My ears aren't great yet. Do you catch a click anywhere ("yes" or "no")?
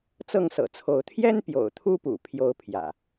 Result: no